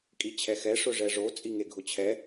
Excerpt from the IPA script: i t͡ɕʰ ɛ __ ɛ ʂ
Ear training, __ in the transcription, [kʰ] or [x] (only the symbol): x